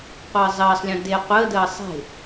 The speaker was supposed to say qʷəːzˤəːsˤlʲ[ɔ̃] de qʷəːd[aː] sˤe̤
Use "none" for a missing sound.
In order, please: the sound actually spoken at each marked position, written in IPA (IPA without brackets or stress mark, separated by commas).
ɔ̃, əː